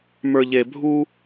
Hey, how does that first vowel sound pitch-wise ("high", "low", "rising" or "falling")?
low